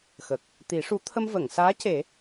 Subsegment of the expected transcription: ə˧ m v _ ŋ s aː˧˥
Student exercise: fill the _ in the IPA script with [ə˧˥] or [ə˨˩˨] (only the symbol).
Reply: ə˨˩˨